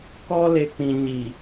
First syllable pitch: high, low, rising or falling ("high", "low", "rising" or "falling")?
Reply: high